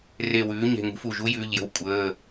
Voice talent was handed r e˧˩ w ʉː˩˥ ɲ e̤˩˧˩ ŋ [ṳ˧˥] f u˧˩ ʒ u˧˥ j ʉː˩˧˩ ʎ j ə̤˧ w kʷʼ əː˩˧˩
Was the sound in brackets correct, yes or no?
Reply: yes